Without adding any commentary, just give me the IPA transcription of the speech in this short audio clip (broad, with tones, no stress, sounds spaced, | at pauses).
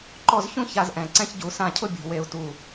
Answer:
ǃ ɔ˥˩ z ç ũ˥ ç a˥˩ z ʔ ɛ̃˨˩ ǀ ɛ̃˥ ç ɟ u˧˩˧ s ã˥˩ cʰ ʊ˥ bʲ ṳ˨˩ w e˧˩˧ u̯ t u˨˩